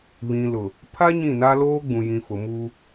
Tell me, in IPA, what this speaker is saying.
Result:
β ĩ˨ l ʊ˨ | pʰ a˦ ɲ ĩ˦˨ n a˦ l oː˦ ɡ͡b ũ˨ j ĩ˨ f ʊ˨ m u˦

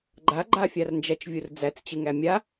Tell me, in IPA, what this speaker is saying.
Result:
ɡ͡ǃ a ɡ͡ǃ a fʲ a r n d͡ʒ æ t͡ʃ vʲ u r d͡z æ t͡s t͡ɕ ɨ ŋ æ mʲ a

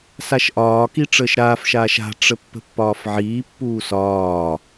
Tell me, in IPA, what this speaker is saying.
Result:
s a ʃ ʔ ɒː k i ʈ͡ʂ əː ʃ ɾ aː f ʃ aː ʃ a̤ ʈ͡ʂ ə pː ə̤ pː ɒː f ʕ iː pː uː s ɒː

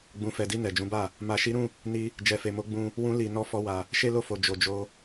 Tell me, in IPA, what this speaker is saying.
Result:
ɡ͡b ũ˨ f ɛ˨ d i˧ n ɛ˨ d͡ʒ ũ˨˦ b a˦˨ | m a˨ ʃ i˨˦ ɾ ũ˦˨ | n i˧ | d͡ʒ ɛ˨ f e˨ m o˨˦ ɡ͡b ũ˧ | w ũ˧ l i˨ n ɔ˧ f ɔ˧ w a˨ | ʃ e˦ l o˦˨ f o˨ d͡ʒ o˨ d͡ʒ o˧

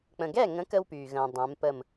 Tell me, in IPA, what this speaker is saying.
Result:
k͡p ə̃˨ ɡ ɛ˥˨ ŋ ə̃˨˥ k ə˥ w p yː˨ ɣ ə̃ː˨ dˤ ɛ̃˨˥ m p ə˥˨ m

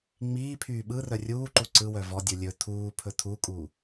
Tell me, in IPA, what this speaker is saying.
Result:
ŋ͡m iː pʰ yː ɓ ɯ r œ rʲ uː ǃ u ǀ ɯ w œ v ɔ dʲ ɯ lʲ ɵ tʰ uː pʰ ɵ tʰ u kʼ u

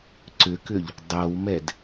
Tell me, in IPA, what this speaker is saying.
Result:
ǀ ʏ k ʏ ʎ | dˤ ɤ w m ɛ d

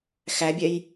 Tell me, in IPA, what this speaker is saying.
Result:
x æ bʲ ɛ j

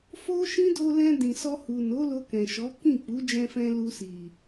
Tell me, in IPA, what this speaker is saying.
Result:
f o˦ ʃ ĩ˦ d o˧ l ɛ̃˧ d ĩ˨ s ɔ˧ h u˨ n o˨˦ l o˧ k ɛ̃˨ ʃ ɔ˨˦ k ĩ˦˨ k͡p u˨˦ d͡ʒ ɛ̃˧ f ɛ̃˧ l u˧ s i˨

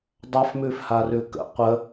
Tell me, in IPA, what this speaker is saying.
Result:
dˤ a f m ʉ f h a r ʉ k ə̰ qʷ ə

